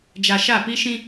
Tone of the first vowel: low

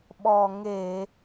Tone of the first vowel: low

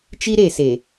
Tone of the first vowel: high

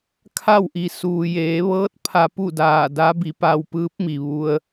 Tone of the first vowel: falling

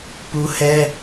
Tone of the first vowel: high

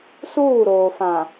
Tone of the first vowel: falling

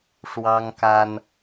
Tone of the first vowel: high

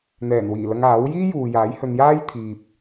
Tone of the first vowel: low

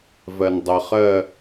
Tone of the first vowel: low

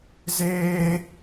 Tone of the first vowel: high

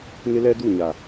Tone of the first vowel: high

